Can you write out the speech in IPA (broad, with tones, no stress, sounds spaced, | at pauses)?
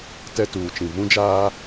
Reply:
t ɛ˦ t uː˨ t͡ʃ ĩ˨ v ũ˦ d͡ʒ aː˦